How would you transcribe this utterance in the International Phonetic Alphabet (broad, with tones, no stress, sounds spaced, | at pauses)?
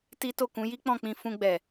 t i˦ t o˦˨ k ũ˨˦ j i˦ k͡p ɔ̃˦˨ k͡p ĩ˧ f ũ˧ ɡ͡b ɛ˨